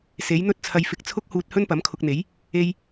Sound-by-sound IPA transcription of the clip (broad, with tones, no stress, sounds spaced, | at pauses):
s e˨˥ j n̪ ɵ˥ t̚ t͡sʰ ɐ˧ j f ɪ˧ k̚ t͡sʰ ʊ˥ k̚ h uː˧ t̚ h ɵ˥ n p ɐ˨˥ m kʰ ʊ˧ k̚ n̪ e˨˥ j | e˧ j